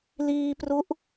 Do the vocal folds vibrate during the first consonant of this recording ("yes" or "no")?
yes